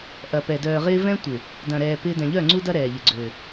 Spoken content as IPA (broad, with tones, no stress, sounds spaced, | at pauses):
ʔ ɐ˨ p ɛ˨ d œː˨ ʁ ɪː˦ v ɛ̃˦ tʷ ɪ˨ | d ɐ̃˨ ɾ ɛː˨ p ɪː˦ d ɛ̃˨ ʎ œ˦˨ ŋ͡ǀ u˦ d ɐ˦ ɾ ɛː˨ ʎ ɪ˨ ɡ͡ǀ ø˨